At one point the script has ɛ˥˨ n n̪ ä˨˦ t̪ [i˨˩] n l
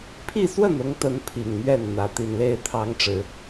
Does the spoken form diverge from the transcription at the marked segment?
no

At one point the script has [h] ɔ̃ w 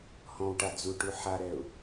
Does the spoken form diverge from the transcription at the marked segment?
no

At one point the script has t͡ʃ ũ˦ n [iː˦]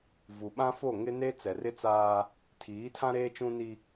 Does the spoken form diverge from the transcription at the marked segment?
yes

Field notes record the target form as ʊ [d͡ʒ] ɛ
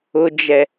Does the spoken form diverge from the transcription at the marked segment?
no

